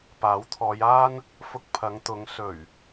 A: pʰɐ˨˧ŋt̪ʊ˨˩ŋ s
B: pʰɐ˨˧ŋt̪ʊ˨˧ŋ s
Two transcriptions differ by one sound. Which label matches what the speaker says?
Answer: B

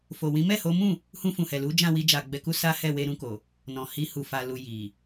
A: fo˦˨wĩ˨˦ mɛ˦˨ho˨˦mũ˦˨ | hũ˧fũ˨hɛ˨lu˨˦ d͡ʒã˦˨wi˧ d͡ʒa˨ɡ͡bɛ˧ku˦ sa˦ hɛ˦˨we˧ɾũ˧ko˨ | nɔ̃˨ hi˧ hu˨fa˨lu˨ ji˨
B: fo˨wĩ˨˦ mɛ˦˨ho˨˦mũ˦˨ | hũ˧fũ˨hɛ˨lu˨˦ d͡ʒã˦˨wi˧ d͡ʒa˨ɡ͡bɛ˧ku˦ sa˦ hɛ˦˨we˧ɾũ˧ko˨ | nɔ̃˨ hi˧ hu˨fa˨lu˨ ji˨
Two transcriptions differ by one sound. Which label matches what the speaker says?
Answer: B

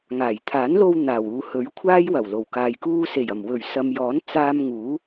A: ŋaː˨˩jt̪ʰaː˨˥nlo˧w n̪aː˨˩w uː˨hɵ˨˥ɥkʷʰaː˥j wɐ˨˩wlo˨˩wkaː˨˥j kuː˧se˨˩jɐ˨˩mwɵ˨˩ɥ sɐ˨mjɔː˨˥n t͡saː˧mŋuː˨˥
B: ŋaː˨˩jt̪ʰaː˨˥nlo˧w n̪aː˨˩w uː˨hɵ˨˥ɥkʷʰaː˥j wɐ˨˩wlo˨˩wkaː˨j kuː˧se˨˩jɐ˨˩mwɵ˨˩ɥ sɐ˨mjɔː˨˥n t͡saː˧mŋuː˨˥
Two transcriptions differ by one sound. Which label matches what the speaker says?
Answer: B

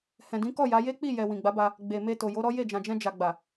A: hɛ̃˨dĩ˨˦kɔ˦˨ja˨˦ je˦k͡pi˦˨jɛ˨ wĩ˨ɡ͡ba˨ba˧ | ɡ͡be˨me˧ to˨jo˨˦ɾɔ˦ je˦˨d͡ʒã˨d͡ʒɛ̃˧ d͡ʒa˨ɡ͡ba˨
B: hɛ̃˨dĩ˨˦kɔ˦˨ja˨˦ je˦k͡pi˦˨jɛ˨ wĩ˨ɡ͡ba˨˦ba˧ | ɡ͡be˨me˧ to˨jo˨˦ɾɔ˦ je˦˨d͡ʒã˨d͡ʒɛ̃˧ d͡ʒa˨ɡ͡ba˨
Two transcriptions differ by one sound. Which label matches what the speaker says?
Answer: B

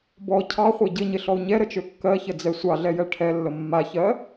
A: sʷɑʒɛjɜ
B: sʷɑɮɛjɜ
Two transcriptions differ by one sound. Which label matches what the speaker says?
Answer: B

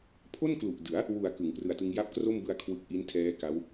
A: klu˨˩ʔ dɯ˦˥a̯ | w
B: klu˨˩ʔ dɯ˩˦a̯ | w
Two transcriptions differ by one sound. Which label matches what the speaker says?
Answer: B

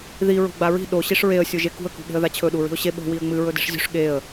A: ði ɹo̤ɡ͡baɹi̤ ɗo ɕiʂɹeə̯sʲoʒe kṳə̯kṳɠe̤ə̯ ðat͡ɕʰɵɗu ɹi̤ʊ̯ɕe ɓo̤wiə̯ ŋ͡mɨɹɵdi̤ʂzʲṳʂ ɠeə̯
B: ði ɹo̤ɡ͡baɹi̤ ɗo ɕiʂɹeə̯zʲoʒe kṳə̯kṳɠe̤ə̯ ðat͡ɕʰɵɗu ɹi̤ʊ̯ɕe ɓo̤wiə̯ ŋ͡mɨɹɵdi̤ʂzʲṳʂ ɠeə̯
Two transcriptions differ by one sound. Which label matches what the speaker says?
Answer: A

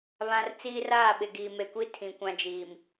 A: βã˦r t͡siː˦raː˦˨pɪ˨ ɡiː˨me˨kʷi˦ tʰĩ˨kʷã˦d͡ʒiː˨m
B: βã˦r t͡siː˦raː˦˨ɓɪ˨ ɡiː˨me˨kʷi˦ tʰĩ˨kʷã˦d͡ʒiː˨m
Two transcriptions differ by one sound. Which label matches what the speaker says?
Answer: B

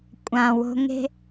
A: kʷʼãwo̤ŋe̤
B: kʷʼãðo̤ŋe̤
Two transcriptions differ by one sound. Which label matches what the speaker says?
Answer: A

